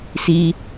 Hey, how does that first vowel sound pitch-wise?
high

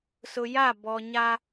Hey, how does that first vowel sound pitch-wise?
low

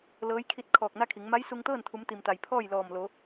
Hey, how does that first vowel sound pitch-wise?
rising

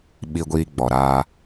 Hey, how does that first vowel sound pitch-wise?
low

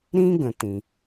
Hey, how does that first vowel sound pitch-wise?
high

